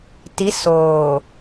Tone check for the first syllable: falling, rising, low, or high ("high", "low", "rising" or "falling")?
rising